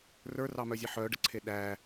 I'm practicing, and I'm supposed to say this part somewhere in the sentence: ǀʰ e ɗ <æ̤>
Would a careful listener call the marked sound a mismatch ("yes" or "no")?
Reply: yes